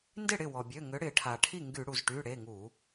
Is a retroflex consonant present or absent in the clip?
present